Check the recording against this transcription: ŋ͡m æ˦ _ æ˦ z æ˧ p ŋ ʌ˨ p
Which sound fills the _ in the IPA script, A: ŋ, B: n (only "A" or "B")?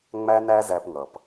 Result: B